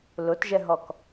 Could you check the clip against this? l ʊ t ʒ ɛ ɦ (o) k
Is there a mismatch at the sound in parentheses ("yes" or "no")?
yes